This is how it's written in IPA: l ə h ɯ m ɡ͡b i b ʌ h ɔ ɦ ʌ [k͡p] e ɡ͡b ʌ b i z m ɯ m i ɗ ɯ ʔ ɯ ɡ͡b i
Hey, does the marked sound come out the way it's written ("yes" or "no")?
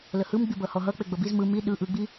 yes